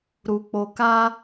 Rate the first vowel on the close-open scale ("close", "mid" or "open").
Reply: close